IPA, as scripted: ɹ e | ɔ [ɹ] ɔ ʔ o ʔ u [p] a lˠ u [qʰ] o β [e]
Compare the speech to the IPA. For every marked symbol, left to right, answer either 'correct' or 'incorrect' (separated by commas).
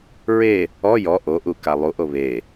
incorrect, incorrect, incorrect, correct